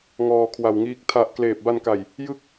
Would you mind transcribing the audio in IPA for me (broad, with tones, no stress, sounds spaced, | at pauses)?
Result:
ŋ ɔː˧ kʰ w a˨˩ w ŋ iː˦˥ k̚ tʰ a˨˩ ʔ k l eː˨˩ p̚ b a˧ n k a˨˩ j | j ɯ˥˩ k̚